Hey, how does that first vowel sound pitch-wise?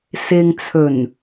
low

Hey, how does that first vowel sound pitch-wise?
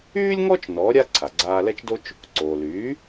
high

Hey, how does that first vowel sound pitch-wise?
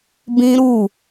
high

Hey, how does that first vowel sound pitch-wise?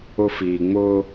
high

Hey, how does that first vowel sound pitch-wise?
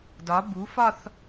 rising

